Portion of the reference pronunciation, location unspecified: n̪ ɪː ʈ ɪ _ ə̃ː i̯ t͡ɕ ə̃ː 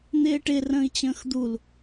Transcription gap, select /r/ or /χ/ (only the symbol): r